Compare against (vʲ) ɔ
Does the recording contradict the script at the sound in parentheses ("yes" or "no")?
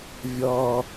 no